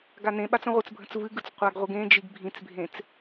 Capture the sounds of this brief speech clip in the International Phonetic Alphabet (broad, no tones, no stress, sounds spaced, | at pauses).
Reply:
ɡ a n ẽ ɓ a t͡s ə̃ ʁʷ ɨ t͡s bʱ ə̃ t͡s v ɨ ɡ ɯ t͡s qʷ a ɡ ʁʷ ɨ ɡ ẽ d͡ʒ i ɡ bʱ ĩ t͡s bʱ ẽ t͡s